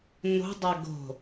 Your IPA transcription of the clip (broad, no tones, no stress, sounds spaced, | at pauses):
n o̤ dˤ a ɡ o̤